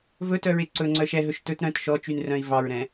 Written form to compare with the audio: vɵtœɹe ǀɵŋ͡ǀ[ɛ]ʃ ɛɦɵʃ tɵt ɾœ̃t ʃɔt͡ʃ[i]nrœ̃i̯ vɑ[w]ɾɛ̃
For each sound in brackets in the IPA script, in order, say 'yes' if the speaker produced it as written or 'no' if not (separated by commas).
no, no, no